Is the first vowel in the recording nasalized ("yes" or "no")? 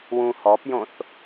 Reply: yes